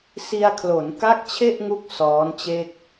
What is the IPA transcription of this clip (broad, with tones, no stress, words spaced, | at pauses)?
si˧a̯kʰlo˩˦nka˥˩k̚ t͡ɕʰe˥˩ʔŋu˦˥k̚ sɔː˦˥nt͡ɕe˥˩k̚